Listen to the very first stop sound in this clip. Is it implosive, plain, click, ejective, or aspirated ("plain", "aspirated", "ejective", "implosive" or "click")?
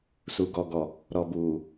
plain